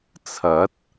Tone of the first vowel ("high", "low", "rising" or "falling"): rising